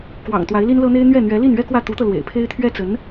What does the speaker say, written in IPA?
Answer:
kwɑ̰˨˩ŋ t̪wa˧˥ɪ̯li˥nlɤ˥n̪e˥ɪ̯ n̪ɥɛ˥˩ n̪ɥɛ˧˥li˥˩n ɥɛ˥kwä˥˩ t̪u˧˥t̪ɤ˧ lwḛ˨˩ɪ̯pʰe˥ɪ̯ t̪ʰɥɛ˥t͡sə˧˥n

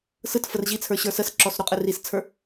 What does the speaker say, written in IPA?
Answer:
sɯt fərʑit͡sʰə˞ ɕə˞səsǁɔs ɾoqʼɘrist͡sʰə˞

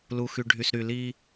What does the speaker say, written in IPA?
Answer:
lu˨xy˨ ɖʱy˨sɾy˨ liː˦

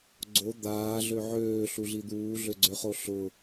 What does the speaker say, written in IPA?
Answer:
ɡ͡ǀo d̪aːɮø ʕøːɬuɮi d̪uːɮøɡ͡ǀøχo ɬʊ

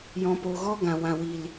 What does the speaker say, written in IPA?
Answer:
jɔ̃˧po˧ ɣɔ˦ɡã˨ wã˨wi˨l

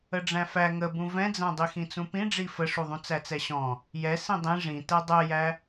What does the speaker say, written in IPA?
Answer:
əɖ͡ʐæ̃fæ ŋəbũ vɛ̃d͡zæ̃ dˤixĩt͡sũpĩ ɖ͡ʐifəʂuðˤũ t͡sæt͡sɛɕɔ̃ | jɛ sĩdˤĩ ʐĩ tɛdˤɛjæ

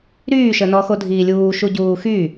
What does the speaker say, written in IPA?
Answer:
ɾyːʃə nɔxodʱiːlʲuː ʃuɟuːxy

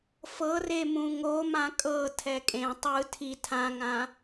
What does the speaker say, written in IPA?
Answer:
fɤre mũŋomã kʼɤ tʰɛkʼẽ tˤɯ tʰi tʰãŋã

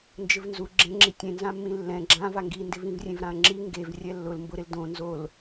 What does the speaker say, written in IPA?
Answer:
nd͡ʒɪvnzu ɡ͡ǁẽŋ͡ǁi tʲẽnzãmːĩ lːɛ̃ ɡ͡ǁã vaŋɡindɪvĩv rʲẽvɾãɐ̯ŋ͡ǁi ŋɡev rʲɛlːʊl mbʊɾɪl dõ nzol

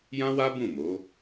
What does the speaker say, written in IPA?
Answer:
jã˦wa˦ bũ˦˨mo˨˦

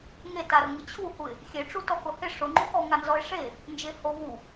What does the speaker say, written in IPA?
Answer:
ŋetarŋɪ t͡ɕʰuhuɪ̯ | xʲeʈ͡ʂu tɔkʊhɪ ʂʊŋ͡ǃukɔ ŋanzɔɪ̯ʂe | nd͡ʒeho vu

